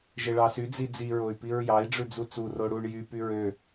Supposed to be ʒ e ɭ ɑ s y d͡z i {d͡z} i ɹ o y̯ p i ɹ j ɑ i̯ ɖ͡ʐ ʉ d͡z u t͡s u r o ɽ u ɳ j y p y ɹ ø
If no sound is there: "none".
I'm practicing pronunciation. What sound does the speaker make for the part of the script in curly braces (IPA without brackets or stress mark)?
d͡z